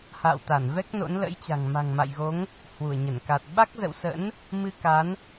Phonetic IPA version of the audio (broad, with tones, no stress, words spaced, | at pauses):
ha̰ː˧˨wt̪a˧˩n vɛ˦˥k̚no̰˧˥n lə̰˧˥jt͡ɕa̤˨˩ŋ ma̤˨˩ŋma̰˧˨jɣo˨˦ŋ | hwu˧˩ə̯ɲə˧˩nka˨˩t̚ ɓa˦˥k̚zə̰˧˨wsə̰˧˥n | mɨ˧ka˨˦n